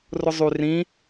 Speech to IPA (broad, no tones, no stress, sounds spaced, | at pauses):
r ʊ zˤ y r ĩ